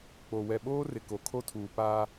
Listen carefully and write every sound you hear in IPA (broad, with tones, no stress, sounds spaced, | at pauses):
k͡p o˨ w ɛ˨ ɓ oː˦ r ɪ˨ k o˨ kʰ o˦ tʰ uː˨ p aː˦